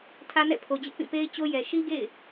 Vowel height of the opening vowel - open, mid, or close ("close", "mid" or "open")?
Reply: open